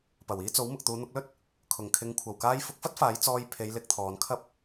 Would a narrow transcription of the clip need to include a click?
no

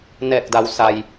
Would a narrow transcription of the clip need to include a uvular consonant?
no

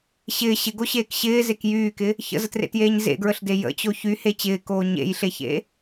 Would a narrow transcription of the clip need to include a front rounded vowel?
yes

